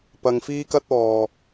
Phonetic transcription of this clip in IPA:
p ɐ˨ ŋ f iː˥ k ɐ˥ t̚ ɔː˨˩

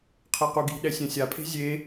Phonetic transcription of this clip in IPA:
qʰ ɛ q u ɡ i̤ ɗ ɛ sʲ ɛ̃ sʲ a pʰ e̤ zʲ e

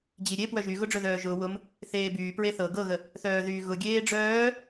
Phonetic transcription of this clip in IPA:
d͡ʑ i ɾʲ e p w œ ʒ y ɣ ʊ ɖ͡ʐ œ ð œː ʒ ʊː w ʊ m | θ eː b yː p ɹ e θ ɤ ɡ ɤ ɣ ə | θ œː ð yː ɣ ʊ ɡʲ eː ɖ͡ʐ œː

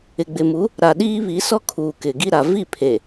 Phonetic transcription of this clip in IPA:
ɪ˨ ɡ͡b ɪ˨ m u˨˦ | ɾ a˨ ɗ iː˦ β i˨˦ s ɔ˦ kʰ uː˨ k ɪ˨ ɡ i˦ ɾ a˨ v i˦˨ pʰ e˨

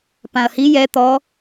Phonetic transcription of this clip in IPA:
p ã ɐ̯ h i j ɛ t̪ ɔ

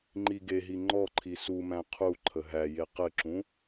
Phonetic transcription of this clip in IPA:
ŋ͡ǃ i ɡ e ɦ i ŋ͡ǃ ɔ ǃʰ i s u m æ̃ qʰ u ǃʰ ə ɦ æ j e q ɘ ǁ ũ

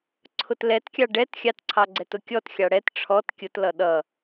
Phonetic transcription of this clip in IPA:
ǀʰ ʊ t l ɛ t kʲ ɑ ɖ ɛ t xʲ ɑ t ǀʰ ɑ ɡ͡ǀ ɛ t ʊ kʲ ɔ t xʲ ɑ ɽ ɛ t ʈ͡ʂʰ ɔ t kʲ ʊ t l ʌ ɗ ʌ

